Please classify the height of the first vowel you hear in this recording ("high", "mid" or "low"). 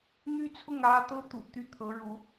high